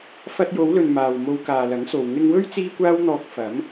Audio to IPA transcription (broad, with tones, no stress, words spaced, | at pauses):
fɐ˧t̚jo˨˧wlɵ˨n maː˨w mo˧wkaː˨lɐ˨˥ŋso˨w ŋɪ˧ŋwɵ˥ɥ t͡siː˥kʷaː˥wn̪ɔː˧k̚ fɐ˨˥m